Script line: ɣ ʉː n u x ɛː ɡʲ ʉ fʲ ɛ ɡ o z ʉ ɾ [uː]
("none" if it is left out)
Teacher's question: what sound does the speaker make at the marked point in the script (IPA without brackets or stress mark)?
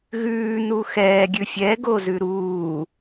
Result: uː